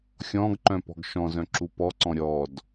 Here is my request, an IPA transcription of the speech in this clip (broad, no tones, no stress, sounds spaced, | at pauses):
xʲ ɔ̃ ɡ ǃ œ̃ p ɔ̤ ɡ ʃ ɔ̃ z œ̃ ǁ u p ɔ ǀ ɔ̃ ɾʲ ɔ d